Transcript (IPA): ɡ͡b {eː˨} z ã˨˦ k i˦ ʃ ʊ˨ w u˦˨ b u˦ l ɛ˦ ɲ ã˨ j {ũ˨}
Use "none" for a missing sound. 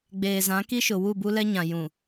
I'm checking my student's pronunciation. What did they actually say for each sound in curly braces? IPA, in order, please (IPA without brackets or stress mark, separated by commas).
eː˨, ũ˨